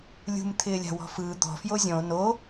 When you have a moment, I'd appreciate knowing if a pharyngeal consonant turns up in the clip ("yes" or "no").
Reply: no